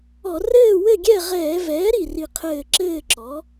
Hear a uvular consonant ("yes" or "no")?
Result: yes